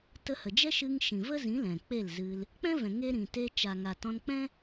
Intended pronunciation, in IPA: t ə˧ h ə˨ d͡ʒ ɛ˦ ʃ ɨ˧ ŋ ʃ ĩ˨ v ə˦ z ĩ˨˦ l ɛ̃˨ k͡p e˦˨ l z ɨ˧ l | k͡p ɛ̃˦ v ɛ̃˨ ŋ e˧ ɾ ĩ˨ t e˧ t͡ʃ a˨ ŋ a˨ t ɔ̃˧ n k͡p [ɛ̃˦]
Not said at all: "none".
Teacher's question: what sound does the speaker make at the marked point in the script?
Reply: ɛ̃˦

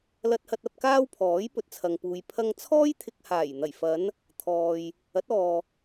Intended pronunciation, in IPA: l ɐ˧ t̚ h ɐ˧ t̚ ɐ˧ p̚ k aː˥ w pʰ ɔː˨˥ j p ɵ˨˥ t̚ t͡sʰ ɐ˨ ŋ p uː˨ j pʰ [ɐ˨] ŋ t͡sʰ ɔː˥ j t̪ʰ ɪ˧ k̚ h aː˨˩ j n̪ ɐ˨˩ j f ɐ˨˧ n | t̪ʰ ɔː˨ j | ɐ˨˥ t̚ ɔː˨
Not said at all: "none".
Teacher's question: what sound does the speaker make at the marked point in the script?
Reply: ɐ˧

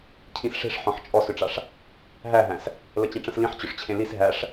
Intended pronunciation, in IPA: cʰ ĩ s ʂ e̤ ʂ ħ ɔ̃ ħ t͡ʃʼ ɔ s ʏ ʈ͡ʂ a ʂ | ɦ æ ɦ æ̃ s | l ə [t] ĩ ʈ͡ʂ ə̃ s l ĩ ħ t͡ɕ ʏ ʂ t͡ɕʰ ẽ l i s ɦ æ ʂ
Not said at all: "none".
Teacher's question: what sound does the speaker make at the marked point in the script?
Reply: t͡ɕ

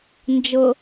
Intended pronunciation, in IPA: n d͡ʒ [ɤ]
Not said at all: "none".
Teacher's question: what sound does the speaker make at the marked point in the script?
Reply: ɤ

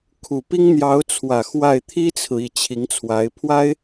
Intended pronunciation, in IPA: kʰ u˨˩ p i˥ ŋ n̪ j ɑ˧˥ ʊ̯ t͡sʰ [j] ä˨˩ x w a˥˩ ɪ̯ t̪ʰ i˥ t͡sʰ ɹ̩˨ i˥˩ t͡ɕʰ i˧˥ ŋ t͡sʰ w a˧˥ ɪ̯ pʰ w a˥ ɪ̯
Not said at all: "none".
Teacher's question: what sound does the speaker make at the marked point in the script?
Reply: w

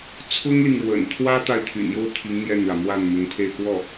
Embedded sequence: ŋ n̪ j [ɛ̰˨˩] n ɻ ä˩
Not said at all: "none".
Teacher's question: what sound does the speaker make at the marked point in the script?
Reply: ɛ˥˩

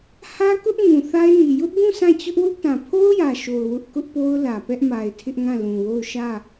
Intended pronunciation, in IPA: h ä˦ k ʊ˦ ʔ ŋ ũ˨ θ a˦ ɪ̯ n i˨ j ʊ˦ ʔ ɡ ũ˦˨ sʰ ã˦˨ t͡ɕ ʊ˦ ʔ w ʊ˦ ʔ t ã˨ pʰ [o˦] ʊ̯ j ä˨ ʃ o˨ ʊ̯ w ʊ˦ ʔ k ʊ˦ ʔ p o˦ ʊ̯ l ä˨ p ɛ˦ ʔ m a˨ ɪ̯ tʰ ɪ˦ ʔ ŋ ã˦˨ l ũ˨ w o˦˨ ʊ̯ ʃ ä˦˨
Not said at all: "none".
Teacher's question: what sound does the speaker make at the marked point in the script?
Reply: o˦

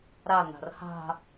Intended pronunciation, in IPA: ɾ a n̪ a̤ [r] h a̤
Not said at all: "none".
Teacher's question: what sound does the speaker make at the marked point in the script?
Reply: r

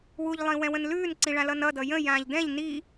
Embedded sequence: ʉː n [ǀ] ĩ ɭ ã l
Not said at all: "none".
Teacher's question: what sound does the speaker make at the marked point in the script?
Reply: ǀ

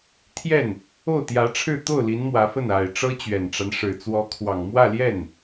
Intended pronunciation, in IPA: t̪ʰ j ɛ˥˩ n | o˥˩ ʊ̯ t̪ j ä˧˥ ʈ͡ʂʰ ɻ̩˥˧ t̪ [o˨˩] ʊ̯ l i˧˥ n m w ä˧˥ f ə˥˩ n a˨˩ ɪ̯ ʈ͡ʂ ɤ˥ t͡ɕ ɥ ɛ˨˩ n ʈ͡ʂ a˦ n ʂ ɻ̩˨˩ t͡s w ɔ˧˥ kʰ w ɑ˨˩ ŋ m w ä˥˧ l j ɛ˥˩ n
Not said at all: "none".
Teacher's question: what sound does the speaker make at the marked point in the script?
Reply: o˥˩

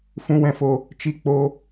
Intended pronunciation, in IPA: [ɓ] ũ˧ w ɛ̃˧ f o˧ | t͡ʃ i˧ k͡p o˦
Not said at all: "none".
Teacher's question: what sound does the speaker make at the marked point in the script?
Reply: f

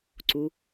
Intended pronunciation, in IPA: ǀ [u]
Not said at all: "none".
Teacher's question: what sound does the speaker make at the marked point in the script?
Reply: u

